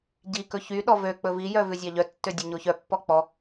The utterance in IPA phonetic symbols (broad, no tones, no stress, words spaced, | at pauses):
ɟikɵ çy ɗɔvøk͡pɵ vijœ vʉzʲɑʎœtːø dʲɑɲoçœpːɔ k͡pɔ